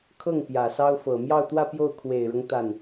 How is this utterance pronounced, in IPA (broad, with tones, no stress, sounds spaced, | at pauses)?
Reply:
kʰ ɤ˥˩ ŋ p j ä˨˩ s ɑ˥ ʊ̯ f ɤ˨˩ m j ɑ˥˧ ʊ̯ t̪ w ä˥˧ p j o˥˩ ʊ̯ kʰ w e˨˩ ɪ̯ ɻ ɤ˦ ŋ t̪ a˥˩ n